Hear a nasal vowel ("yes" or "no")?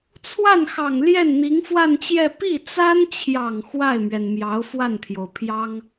no